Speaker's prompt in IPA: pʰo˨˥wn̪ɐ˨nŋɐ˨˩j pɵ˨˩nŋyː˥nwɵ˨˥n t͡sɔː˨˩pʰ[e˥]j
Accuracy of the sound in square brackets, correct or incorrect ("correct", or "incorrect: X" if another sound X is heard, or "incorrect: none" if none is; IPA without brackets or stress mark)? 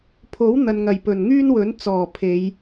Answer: incorrect: e˨˧